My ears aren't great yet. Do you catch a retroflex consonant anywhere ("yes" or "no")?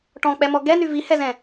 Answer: yes